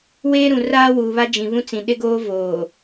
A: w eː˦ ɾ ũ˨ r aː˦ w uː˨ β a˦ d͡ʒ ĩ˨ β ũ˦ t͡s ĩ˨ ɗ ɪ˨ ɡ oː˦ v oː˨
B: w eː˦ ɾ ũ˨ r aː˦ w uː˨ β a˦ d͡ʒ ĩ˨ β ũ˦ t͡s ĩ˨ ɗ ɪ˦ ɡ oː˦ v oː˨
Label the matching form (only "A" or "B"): B